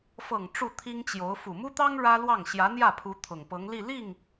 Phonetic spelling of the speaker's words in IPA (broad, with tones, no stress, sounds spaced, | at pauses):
f ɤ˨˩ ŋ ʈ͡ʂ u˥˩ t̪ʰ i˥ ŋ t͡ɕ j o˧˥ ʊ̯ f u˨˩ m u˥ t̪ ɑ˥ ŋ ɻ ä˥ l w ɑ˥˩ ŋ ɕ j ä˧˥ n̪ j ä˥˩ pʰ u˧˥ t̪ʰ ʊ˨˩ ŋ p ɤ˧˥ ŋ l i˥˧ l i˥˩ ŋ